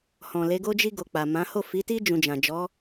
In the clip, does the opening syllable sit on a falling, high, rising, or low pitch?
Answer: low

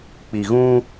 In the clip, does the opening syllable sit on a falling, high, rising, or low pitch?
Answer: low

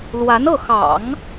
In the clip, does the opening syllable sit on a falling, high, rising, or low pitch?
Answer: rising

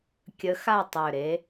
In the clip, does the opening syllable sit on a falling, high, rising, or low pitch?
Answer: rising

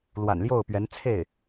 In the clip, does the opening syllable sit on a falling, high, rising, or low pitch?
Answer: low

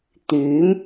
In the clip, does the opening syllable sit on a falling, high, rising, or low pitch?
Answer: rising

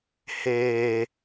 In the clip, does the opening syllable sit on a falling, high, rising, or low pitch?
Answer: low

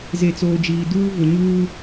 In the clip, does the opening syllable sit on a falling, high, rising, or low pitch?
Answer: low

